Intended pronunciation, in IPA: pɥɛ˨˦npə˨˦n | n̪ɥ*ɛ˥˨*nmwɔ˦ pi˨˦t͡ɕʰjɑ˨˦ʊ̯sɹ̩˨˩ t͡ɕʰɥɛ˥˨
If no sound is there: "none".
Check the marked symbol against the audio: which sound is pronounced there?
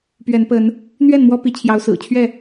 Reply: ɛ˥˨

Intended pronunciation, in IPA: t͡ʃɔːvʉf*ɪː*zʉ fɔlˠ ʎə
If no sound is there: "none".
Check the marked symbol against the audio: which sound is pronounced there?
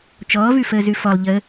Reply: əː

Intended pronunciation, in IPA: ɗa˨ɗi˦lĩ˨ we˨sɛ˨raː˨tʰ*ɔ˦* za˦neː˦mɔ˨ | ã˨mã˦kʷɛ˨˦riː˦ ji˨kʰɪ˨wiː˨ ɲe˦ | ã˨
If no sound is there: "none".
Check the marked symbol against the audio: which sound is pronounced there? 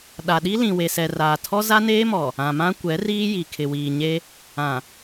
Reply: ɔ˦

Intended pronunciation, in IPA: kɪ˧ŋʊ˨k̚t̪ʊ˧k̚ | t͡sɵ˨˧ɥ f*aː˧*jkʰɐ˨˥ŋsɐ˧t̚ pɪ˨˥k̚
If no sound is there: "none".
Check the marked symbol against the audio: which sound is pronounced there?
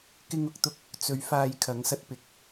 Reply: aː˧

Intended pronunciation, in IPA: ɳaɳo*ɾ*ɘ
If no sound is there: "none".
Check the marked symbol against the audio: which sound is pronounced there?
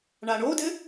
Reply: d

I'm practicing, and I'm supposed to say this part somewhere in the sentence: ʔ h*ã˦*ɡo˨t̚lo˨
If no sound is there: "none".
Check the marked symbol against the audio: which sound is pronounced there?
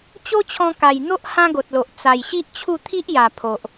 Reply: ã˦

